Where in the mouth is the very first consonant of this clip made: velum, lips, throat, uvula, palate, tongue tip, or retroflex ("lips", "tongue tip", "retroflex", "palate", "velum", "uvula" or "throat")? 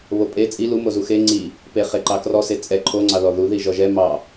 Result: lips